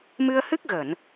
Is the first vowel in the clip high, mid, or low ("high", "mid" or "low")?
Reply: high